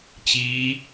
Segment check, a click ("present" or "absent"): absent